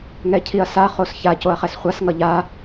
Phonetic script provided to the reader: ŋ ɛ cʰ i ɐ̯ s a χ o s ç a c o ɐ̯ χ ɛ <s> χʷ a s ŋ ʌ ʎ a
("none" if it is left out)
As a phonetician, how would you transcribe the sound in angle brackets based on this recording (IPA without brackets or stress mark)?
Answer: s